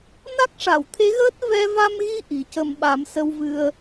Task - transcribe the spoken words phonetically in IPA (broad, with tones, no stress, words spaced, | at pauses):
na˦˥k̚ʂa˨˩˨wt̪ʰe˧˥ɣəː˦˥t̚ vɛ˧va˧mɣi˧ ʔi˨˩cə˧m ɓa˨˩˦msə˧wvɨ˧ə̯